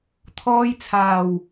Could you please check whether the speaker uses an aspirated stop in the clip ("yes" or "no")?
yes